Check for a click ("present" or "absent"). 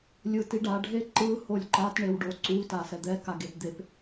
present